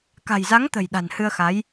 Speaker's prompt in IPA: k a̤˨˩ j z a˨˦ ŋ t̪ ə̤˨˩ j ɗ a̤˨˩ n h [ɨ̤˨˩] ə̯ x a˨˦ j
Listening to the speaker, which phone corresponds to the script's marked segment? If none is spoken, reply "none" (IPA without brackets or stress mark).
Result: ɨ˧